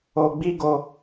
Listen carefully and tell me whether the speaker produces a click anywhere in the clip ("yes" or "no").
no